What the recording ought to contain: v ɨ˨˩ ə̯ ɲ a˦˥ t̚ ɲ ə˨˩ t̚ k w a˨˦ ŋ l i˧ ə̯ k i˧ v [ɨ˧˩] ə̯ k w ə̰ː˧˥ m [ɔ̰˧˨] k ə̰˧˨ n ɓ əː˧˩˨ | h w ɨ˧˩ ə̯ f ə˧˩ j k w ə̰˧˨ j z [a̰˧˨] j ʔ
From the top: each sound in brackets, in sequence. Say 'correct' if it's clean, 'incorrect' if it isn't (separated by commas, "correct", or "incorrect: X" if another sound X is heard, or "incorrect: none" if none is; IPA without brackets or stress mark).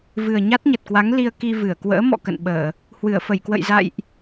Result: correct, correct, correct